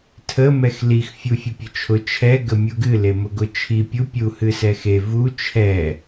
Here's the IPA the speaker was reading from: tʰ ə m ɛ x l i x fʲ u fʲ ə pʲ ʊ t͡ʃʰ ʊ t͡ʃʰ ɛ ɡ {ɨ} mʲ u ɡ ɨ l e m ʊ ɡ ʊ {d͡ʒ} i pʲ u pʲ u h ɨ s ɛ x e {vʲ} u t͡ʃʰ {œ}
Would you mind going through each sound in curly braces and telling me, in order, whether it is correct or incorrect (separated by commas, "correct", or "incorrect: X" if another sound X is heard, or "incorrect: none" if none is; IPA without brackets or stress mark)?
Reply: incorrect: ə, incorrect: t͡ʃʰ, incorrect: v, incorrect: ɛ